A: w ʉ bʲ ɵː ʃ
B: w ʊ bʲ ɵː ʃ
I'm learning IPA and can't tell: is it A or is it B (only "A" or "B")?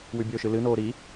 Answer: A